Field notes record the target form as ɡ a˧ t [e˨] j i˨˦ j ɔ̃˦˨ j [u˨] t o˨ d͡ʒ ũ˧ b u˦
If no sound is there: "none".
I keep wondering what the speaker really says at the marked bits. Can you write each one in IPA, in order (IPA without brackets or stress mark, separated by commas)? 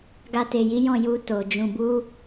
e˨, u˧